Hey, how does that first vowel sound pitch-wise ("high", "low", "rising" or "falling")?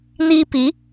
high